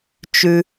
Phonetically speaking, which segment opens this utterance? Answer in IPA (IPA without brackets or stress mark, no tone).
t͡ʃ